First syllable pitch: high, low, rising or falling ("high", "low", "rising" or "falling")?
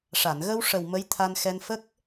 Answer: low